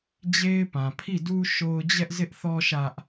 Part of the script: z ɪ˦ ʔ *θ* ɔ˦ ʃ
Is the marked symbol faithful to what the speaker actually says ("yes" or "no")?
yes